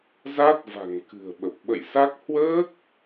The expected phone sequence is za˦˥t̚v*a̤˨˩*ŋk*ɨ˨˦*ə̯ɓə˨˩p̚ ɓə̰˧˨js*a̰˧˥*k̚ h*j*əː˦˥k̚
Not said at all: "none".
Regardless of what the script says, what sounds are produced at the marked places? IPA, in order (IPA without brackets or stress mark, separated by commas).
a̤˨˩, ɨ̤˨˩, a˦˥, w